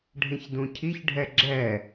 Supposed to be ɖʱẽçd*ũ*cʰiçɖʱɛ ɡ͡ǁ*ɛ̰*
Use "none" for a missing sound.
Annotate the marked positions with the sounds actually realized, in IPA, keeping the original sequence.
ũ, ɛ

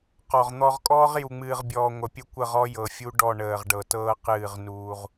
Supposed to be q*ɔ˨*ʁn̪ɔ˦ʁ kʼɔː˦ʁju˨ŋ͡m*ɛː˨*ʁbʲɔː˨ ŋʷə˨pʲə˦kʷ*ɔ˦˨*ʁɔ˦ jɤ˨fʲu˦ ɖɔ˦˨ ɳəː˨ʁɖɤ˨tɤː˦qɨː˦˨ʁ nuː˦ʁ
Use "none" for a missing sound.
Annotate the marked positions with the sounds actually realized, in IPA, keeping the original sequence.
ɔ˨, ɨː˨, ə˦˨

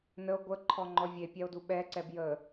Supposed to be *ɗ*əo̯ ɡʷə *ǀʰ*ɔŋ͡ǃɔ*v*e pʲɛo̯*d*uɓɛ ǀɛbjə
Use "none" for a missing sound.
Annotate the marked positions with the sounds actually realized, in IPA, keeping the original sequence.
n, ǃʰ, vʲ, d

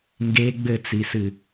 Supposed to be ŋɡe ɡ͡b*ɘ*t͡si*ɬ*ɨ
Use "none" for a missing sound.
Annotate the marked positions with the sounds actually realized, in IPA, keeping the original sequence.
ɘ, s

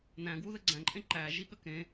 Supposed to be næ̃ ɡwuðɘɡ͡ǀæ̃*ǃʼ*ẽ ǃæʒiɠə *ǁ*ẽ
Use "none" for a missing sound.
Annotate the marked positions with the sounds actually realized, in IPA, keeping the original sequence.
ǃʼ, k

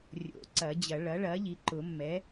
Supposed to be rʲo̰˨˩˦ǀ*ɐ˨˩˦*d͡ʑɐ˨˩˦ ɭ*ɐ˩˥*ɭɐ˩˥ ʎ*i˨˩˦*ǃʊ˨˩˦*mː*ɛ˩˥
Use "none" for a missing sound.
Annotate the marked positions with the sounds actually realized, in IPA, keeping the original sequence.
ɐ˨˩˦, ɐ˩˥, i˩˥, mː

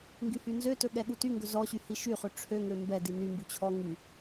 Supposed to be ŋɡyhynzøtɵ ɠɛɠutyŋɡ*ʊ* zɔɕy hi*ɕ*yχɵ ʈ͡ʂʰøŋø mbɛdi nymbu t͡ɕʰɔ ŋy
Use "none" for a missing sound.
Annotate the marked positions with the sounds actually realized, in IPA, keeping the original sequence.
ɵ, ʃ

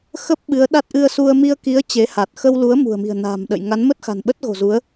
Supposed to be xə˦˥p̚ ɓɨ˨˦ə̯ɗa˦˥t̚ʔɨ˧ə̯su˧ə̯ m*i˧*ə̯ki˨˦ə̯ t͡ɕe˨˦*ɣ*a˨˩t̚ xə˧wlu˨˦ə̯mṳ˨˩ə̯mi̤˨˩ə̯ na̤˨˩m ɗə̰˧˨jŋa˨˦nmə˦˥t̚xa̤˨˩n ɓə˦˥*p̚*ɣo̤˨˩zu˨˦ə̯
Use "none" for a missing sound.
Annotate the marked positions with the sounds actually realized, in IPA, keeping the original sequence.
i˧, h, t̚

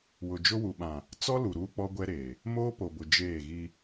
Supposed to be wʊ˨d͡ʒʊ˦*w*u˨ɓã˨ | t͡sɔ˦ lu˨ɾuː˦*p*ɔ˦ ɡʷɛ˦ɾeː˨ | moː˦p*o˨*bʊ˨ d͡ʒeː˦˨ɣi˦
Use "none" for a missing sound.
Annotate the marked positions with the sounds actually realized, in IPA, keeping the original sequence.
w, k͡p, o˨

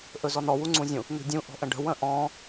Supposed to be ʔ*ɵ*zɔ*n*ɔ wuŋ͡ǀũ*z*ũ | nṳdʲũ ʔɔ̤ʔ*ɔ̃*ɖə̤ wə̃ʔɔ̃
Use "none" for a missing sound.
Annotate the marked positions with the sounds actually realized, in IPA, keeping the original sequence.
ɵ, n, zʲ, ə̃

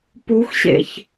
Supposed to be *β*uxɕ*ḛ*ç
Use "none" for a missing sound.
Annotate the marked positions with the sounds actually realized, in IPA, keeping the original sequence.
p, ḛ

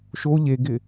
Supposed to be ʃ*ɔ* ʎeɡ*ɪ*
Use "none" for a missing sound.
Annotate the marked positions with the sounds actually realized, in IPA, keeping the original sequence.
o, ɪ

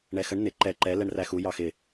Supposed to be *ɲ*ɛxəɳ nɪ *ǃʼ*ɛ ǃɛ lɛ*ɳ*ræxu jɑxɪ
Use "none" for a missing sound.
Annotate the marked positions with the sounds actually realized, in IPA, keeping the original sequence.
ɳ, ǃ, ɳ

